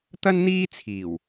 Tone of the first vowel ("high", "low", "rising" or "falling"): high